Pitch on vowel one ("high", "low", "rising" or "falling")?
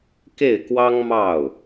falling